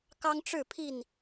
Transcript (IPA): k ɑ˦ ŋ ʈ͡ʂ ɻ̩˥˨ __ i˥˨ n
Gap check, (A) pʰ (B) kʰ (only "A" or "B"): A